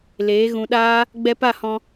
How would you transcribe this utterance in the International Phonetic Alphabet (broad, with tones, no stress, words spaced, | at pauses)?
leː˨˦ɣũ˧ɗaː˦ | ɡ͡bɛ˧pa˦˨hɔ̃˧